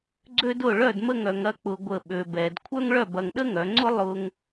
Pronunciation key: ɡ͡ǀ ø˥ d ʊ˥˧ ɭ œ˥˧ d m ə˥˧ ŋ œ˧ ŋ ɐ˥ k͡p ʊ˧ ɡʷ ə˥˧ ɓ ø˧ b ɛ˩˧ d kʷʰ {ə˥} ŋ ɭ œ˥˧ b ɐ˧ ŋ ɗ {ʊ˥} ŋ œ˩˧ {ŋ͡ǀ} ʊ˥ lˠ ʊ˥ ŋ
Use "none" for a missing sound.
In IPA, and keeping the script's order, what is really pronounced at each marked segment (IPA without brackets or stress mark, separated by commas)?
œ˥, ə˥, ŋ͡ǀ